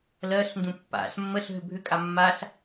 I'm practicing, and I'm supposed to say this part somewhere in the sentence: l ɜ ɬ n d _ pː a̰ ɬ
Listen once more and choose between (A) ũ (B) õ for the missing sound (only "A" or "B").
A